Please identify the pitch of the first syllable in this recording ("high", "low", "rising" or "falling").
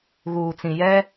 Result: low